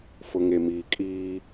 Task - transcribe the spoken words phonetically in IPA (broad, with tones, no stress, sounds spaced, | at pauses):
f ʊ˨ ŋ e˨ m iː˨ kʼ iː˦